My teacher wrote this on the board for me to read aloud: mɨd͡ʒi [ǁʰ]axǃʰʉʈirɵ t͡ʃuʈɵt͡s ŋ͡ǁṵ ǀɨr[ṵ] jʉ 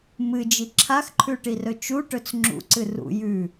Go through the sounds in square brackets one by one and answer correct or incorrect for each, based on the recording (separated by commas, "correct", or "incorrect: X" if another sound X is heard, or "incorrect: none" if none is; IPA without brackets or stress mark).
correct, correct